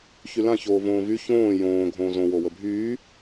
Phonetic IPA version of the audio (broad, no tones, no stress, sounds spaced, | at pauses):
ç y l ã ç oː v õː v y ç õː j õː ɡʱ õː z õ w o w ə bʱ yː